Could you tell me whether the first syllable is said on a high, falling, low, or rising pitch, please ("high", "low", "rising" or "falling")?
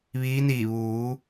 rising